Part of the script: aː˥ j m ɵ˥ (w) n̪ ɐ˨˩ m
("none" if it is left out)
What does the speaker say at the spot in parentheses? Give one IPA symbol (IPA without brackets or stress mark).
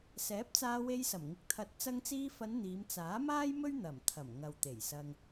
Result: ɥ